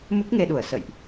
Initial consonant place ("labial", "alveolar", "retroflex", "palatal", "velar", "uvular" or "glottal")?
labial